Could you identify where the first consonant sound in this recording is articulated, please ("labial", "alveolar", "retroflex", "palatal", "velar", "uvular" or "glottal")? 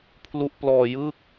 labial